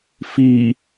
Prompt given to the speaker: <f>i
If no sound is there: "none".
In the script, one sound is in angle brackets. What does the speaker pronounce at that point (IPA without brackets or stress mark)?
f